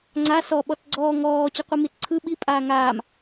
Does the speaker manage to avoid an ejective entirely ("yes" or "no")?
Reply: no